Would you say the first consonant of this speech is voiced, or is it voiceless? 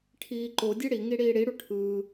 voiceless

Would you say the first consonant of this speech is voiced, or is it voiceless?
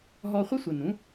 voiced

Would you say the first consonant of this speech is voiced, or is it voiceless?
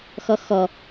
voiceless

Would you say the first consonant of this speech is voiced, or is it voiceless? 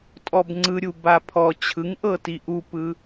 voiceless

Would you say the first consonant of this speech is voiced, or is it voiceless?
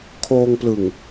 voiceless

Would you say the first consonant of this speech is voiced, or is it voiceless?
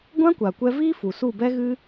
voiced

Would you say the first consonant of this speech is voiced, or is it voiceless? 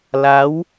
voiced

